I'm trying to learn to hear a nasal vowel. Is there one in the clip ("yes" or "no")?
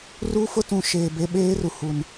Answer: yes